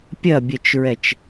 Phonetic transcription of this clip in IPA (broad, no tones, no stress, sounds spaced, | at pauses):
pʲ ɐ bʲ ɛ t͡ʃ ɹ ɛ t͡ʃ